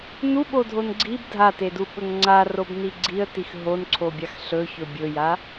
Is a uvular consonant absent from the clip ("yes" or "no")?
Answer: yes